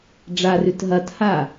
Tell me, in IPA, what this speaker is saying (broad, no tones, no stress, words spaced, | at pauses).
ɖ͡ʐarʉt ɦɐtha